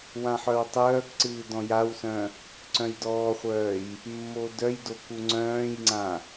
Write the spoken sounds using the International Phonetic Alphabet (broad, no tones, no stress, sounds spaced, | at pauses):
w ã ħ œ w tˤ œː k ǀ ɨː d ɔ̃ j a w s œ̃ | ǀ œ̃ j d ɔː χʷ œː j | mː o d œ j d o k u ŋ͡ǀ œ̃ː j ŋ͡ǀ ã